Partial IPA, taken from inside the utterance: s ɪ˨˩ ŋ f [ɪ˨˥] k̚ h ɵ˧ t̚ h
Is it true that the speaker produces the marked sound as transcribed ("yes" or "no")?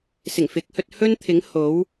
yes